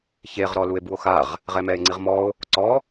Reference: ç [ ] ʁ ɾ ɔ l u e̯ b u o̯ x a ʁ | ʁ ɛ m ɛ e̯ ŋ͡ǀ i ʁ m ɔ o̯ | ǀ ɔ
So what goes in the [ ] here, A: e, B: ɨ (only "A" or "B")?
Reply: A